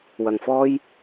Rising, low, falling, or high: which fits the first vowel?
low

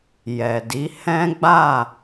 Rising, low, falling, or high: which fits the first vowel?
low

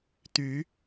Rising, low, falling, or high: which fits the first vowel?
rising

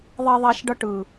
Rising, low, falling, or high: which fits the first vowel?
high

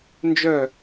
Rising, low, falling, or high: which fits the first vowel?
falling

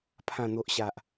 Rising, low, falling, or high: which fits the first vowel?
low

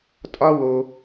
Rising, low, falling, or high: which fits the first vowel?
high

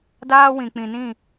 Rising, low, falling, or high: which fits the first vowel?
high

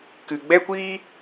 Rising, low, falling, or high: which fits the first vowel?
low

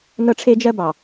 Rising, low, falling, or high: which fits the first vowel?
high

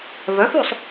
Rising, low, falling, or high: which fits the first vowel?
rising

